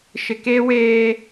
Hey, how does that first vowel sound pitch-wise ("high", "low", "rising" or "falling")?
low